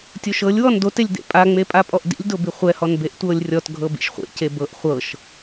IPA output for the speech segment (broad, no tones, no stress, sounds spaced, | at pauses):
tʲ o ʃ ɤ lʲ w ɔ n d o t e lʲ d ḛ pʼ a ŋ͡m e pʼ a pʼ ɔ ʔ d ḭ lʲ d o b i χʷ ɛ h ɔ n b e ʔ tʷ ɤ lʲ rʲ ɔ t ɡʱ ɤ b ḭ ʃ χʷ ḛ c e b ɤ ʔ χʷ ɤ ʃ